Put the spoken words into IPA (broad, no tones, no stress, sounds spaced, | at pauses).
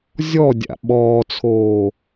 zʲ ɔ dʲ a̰ ɓ ɔː t͡sʰ oː